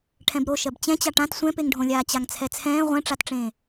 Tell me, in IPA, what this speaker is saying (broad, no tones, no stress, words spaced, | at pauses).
ʈʰɛ̃bɾo ʃɜbt͡ɕɛ̃ t͡ɕaʈãt sʷɛ̃peŋɖʱõlʲaː t͡ɕaŋt͡sʰɛt͡sʰɛ̃ː ʁʷɛ̃ʈ͡ʂatʈ͡ʂẽː